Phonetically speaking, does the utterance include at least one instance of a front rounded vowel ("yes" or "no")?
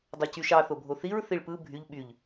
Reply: yes